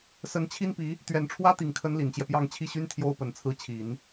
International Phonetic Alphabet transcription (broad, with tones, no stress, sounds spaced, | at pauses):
s ə˧˥ n t͡ɕʰ i˥ n p i˧˥ | t̪ ɥ ɛ˨˩ n ʈ͡ʂʰ w ä˥ t̪ i˨˩ ŋ kʰ ə˧˥ n l i˨˩ n t͡ɕ j ɛ˦ p j ɑ˥˧ ŋ t͡ɕʰ i˥˩ ɕ y˥ n t̪ʰ j o˥ ʊ̯ p ə˨˩ n t͡sʰ ɹ̩˥ t͡ɕʰ i˨˩˦ n